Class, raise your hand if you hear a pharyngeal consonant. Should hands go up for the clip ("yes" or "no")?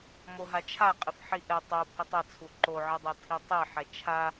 yes